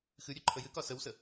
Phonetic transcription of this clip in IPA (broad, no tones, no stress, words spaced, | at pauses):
xɨɾʲø ǃʰəjɨkɒ səwsə